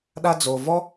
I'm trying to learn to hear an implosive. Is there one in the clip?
yes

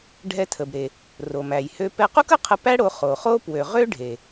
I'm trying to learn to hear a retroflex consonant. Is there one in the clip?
yes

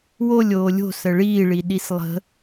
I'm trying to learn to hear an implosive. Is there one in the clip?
yes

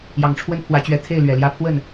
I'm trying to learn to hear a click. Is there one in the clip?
no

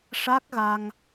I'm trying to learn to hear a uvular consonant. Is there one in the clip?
no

